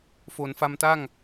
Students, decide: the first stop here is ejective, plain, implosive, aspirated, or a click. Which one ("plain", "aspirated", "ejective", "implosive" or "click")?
plain